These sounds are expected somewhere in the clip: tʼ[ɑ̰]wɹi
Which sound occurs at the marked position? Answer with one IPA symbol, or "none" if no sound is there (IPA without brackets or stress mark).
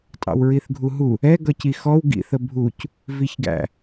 ɑ̰